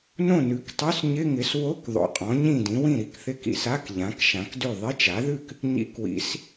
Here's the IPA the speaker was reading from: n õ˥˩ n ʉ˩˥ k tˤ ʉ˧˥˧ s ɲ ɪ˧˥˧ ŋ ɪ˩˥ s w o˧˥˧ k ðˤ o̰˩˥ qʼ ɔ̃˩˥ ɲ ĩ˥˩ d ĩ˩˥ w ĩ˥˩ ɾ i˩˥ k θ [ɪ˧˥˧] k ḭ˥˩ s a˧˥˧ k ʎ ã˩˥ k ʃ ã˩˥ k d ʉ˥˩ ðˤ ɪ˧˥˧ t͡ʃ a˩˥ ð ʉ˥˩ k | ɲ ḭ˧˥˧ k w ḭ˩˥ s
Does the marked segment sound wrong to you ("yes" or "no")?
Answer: no